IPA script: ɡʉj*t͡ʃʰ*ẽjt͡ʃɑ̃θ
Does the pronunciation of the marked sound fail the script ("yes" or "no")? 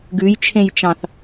no